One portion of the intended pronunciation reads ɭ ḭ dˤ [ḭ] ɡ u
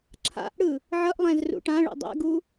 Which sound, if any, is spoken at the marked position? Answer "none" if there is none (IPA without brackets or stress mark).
ḛ